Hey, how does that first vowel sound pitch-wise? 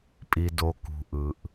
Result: low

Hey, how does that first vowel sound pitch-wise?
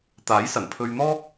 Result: rising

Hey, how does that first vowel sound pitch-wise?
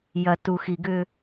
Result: low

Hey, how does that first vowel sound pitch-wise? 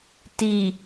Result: low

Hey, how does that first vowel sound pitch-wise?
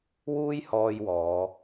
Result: high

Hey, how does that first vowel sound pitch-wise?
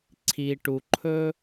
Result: low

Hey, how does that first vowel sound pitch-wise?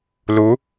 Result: rising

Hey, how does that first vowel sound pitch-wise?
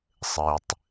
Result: low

